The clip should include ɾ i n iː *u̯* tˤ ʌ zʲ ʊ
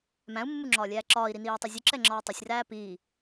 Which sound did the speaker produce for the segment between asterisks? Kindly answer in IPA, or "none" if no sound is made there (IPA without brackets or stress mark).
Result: u̯